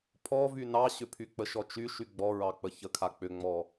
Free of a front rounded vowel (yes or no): no